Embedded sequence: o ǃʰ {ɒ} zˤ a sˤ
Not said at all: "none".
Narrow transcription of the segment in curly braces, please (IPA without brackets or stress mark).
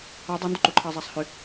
ɑ